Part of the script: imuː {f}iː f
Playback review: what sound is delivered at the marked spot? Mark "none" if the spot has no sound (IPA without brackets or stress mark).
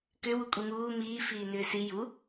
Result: m